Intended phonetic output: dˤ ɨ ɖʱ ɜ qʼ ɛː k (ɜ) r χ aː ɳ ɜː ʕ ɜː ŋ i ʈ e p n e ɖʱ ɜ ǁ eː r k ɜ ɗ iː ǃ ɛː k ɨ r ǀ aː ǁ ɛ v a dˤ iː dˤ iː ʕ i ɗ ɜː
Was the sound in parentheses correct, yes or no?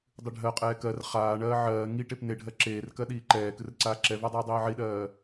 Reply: yes